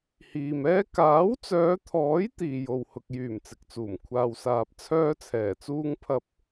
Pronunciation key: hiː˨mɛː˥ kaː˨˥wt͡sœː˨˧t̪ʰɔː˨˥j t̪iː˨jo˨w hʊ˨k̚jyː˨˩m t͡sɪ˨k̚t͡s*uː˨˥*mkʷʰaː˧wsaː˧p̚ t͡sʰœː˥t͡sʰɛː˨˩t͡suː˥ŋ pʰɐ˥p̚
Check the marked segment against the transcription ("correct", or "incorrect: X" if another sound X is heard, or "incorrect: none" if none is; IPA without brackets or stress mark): incorrect: uː˨˩